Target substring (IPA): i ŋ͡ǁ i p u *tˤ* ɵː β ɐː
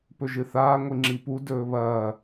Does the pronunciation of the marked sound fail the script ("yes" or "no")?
yes